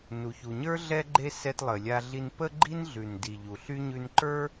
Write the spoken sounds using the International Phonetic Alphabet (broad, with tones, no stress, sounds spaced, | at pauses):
n u˩ ç u˩ ɲ ə˞˥ ɮ ɛ˧ ɡ͡ǃ e˧ s ɛ˧ t lˠ ə˩ lʲ a˧ ɮ i˧ n p ə˧ ɡ͡ǃ i˧ n ɮ ʉ˩ n d i˩ ʎ u˩ ɬ y˥ ɲ ʉ˧ n ǃ ə˞˥